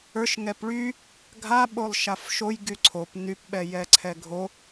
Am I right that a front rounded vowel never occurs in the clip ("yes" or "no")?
no